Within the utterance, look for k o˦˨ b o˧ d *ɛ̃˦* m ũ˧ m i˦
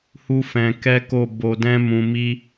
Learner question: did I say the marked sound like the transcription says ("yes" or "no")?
yes